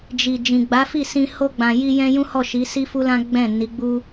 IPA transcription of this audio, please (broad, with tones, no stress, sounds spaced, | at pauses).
d͡ʒ i˨ d͡ʒ ĩ˨ ɡ͡b a˨˦ f i˦˨ s ĩ˧ h o˧ ɡ͡b ã˨ j i˧ j ɛ̃˦ j ũ˦ h ɔ˦˨ ʃ i˨˦ s i˦ f u˦ l ã˦ ɡ͡b ɛ̃˦˨ n i˨˦ ɡ͡b u˦